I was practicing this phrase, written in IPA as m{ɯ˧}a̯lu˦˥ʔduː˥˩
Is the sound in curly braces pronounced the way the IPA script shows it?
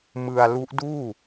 yes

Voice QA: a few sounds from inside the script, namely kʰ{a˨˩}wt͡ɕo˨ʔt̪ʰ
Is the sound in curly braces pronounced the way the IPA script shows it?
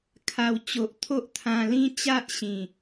yes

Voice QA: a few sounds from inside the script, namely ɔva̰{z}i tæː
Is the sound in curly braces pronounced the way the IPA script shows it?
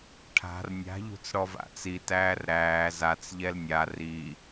no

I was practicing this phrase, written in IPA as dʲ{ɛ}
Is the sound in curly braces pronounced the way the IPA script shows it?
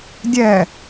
yes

